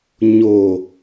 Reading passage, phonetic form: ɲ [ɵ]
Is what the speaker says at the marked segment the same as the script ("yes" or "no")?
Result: no